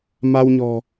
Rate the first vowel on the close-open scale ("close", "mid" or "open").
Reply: open